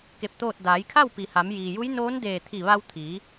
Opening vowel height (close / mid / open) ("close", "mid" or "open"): mid